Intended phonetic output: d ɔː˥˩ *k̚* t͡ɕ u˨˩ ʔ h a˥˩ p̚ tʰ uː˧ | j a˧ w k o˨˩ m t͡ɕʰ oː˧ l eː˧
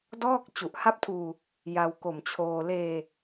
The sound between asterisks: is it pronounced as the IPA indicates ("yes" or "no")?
yes